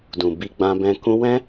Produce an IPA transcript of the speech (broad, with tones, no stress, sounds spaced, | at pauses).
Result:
d ũ˨ b i˧ ɡ͡b ã˧ b ɛ̃˧ k ũ˧ w ɛ̃˦